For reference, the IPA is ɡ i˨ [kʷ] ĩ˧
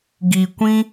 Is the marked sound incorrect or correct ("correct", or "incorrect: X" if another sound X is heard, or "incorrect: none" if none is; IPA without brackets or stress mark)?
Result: correct